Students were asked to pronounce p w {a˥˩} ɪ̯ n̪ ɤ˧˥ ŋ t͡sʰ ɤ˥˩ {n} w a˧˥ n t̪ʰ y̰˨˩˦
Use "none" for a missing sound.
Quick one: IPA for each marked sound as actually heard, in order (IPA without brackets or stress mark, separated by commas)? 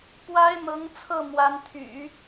a˥, m